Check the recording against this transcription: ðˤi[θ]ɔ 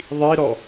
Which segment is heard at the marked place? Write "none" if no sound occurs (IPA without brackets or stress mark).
ɾ